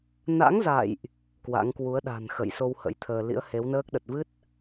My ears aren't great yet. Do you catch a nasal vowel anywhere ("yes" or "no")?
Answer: no